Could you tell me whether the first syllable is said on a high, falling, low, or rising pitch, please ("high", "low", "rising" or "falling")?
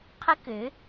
high